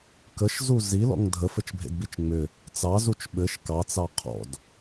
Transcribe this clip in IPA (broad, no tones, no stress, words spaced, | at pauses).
kəʃzu zilɔ̰ŋ dʱəfɘt͡ʃbʱḛdbit͡ʃ ŋ͡mʏ | t͡sɑzut͡ʃ ɓɘʃ kɑt͡sɑ qʰɔ̰d